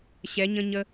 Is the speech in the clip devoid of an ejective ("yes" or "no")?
yes